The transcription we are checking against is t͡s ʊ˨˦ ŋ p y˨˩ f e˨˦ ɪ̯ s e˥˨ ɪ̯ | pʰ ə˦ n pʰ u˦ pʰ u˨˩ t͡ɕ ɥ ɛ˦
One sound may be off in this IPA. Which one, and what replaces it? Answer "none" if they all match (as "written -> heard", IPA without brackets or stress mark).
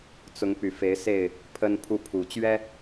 none